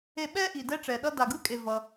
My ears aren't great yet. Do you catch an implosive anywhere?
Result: yes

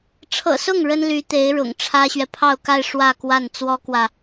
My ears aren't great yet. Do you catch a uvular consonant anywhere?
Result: no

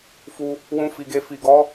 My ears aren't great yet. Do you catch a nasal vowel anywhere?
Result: yes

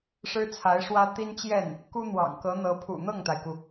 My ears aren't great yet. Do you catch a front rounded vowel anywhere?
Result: no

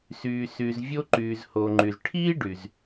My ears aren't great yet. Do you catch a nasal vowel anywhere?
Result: no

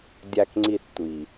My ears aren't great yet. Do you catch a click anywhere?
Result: yes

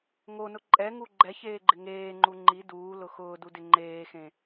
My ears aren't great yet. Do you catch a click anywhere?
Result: yes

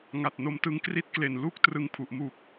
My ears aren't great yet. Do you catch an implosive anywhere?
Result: no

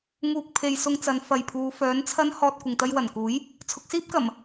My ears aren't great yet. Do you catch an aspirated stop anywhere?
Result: yes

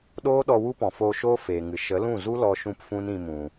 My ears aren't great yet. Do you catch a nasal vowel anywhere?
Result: yes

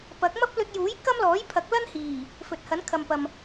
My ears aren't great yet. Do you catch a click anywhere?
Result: no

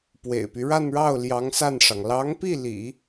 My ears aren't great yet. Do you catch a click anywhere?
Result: no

